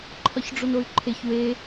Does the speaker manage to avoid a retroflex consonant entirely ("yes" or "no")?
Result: no